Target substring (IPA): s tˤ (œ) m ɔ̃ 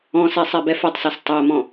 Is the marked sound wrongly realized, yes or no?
yes